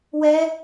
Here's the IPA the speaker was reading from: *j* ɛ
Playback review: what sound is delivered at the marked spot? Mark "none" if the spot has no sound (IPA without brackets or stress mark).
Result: w